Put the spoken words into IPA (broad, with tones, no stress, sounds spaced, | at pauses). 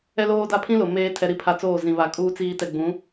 ɛ˦ l oː˦ d a˦ pʰ ĩ˦ l ʊ˨ m eː˦ tʰ ɛ˨ ɾ i˦ pʰ a˨ t͡s oː˦˨ z ĩ˨ β a˨ kʼ uː˦ t͡s iː˦ t ɛ˨ ɡ͡b ũ˨˦